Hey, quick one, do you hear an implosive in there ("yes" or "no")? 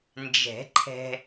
no